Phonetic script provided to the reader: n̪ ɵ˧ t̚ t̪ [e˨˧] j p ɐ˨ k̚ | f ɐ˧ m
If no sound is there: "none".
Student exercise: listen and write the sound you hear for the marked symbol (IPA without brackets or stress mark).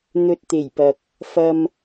e˨˩